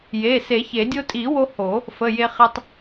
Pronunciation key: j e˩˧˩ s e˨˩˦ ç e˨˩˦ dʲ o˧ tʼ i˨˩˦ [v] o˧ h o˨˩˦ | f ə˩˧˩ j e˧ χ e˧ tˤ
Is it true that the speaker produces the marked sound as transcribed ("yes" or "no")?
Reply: no